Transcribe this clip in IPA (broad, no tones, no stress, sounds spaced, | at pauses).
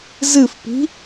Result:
z ɨ f p i̤